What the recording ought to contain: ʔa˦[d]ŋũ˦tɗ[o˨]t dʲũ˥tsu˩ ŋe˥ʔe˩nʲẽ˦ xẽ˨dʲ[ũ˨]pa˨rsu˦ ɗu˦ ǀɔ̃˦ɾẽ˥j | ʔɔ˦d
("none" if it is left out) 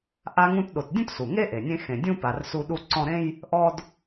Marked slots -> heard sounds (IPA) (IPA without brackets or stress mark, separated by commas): none, o˨, ũ˥